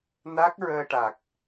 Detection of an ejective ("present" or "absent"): absent